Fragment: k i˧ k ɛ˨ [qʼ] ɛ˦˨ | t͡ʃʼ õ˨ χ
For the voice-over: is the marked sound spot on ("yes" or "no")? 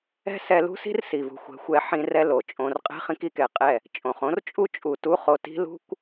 yes